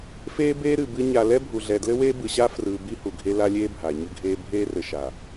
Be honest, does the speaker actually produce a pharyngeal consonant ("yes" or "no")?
no